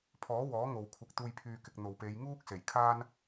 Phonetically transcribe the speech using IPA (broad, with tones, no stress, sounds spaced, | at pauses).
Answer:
pʰ ɔː˨˥ w ɔː˨˥ ŋ o˨ w kʷʰ ɪ˨ k̚ t̪ uː˨ j pʰ yː˨ k ɪ˨ k̚ n̪ o˨ w p e˨˧ j ŋ uː˥ k̚ s e˨˩ j kʰ aː˥ n